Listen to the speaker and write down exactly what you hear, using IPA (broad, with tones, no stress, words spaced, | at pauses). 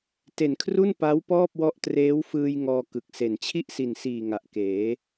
te˨˩nkʰru˥˩n pa˦˥w pɔː˥˩p̚wɔ˦˥ʔ treː˦˥wfɯː˧j ŋɔː˧kɯ˨˩k̚se˨˩n t͡ɕʰi˥˩ʔsi˨˩nsiː˨˩ ŋa˨˩ʔkeː˩˦